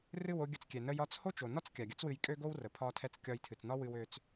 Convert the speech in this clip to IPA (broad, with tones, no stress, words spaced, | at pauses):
rɨ˦˨wo˧ɡʲə˧t͡skʲɛ˨ nə˧jɒ˧t͡s ho˦t͡ʃo˨nɒ˦t͡s kʲa˨ɡʲə˦t͡swɨ˧jkʼø˦ ɡo˦wrə˨ pʰɒ˧tʰɛ˧t͡s kʲɒ˧jtʰɨ˨t͡snɒ˦wɨ˧w ø˧t͡s